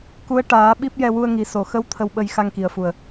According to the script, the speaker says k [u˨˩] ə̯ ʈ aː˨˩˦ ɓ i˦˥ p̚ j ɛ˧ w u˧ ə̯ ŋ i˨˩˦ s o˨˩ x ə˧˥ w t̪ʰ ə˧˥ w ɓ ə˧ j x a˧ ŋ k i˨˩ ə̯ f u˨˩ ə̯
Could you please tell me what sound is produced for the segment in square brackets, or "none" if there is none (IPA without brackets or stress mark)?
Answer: u˧˥